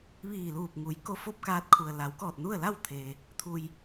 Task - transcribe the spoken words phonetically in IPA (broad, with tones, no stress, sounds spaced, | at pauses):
ʋ iː˧˩ l uː˧˩ p̚ ŋ u˩˧ j k o˧ f o˥˨ p̚ k aː˧ t̚ kʰ u˩ ə̯ l a˩˧ w k ɔː˧˩ t̚ n u˥˨ ə̯ l a˥˨ w t̪ʰ eː˩ | t̪ʰ u˩ j